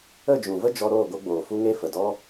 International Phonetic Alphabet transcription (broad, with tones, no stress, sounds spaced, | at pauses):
ə˦˨ d͡ʒ ũ˨ v ə˦ d͡ʒ ɔ˧ ɾ oː˦˨ ɡ o˧ ɡ͡b oː˨ f u˦ ŋ e˦ f ə˨ d ɔ˦